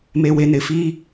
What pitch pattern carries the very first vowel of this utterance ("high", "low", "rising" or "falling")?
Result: low